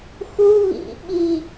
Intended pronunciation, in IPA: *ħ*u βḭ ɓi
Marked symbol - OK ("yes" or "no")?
no